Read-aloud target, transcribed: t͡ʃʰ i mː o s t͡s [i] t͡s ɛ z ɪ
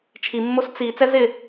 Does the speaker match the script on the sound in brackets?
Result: yes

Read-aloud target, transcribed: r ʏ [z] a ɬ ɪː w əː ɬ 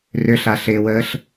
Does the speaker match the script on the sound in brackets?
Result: no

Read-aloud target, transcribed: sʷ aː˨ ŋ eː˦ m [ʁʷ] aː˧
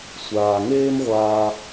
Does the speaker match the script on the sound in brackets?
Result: yes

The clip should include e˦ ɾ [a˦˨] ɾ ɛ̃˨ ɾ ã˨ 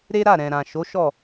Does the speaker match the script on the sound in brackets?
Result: yes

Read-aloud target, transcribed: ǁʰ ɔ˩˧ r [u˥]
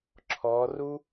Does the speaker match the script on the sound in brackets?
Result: yes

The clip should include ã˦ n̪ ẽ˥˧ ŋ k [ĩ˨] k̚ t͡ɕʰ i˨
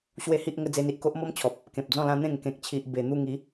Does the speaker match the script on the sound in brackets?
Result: no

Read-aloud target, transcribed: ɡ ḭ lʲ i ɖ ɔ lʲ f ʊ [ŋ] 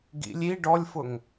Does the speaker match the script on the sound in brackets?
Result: yes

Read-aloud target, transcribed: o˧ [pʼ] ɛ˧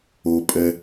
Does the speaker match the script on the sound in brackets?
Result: yes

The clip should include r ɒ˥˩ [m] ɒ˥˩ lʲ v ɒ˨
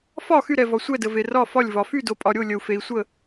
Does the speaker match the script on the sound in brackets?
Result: no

